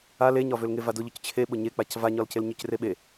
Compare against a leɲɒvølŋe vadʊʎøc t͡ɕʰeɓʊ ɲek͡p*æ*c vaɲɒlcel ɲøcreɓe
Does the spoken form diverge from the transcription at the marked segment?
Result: yes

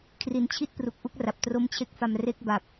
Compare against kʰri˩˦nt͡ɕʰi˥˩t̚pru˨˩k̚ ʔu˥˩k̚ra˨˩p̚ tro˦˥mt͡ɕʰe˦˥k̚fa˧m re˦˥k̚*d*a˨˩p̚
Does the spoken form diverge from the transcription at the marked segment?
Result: yes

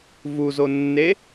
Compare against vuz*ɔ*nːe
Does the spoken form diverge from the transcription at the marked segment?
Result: yes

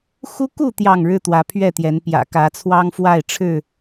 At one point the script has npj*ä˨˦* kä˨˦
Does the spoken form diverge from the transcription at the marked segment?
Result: yes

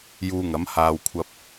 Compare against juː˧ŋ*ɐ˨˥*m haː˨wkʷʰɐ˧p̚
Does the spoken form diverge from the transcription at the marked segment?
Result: no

